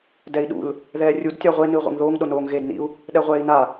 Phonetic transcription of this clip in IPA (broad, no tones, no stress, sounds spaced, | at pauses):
d ɛ i̯ ɗ ṵ l | ð ɛː rʲ u d tʲ a ʁʷ e n ɨː ʁʷ ḛ ŋ ð oː ŋ ɗ o n oː ŋ ɣ eː d n ḭ u̯ | ɗ ɛ ʁʷ ɛː i̯ n a